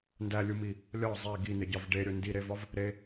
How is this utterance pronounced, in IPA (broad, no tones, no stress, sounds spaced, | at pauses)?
n d æ lʲ u m i | lʲ ɒ zˤ e ɡ i n̪ e ɟ ɒ v ɖ e ɾʲ o n d i ɾ e v ɒ v | ɾ e